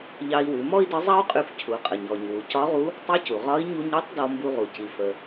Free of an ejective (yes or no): no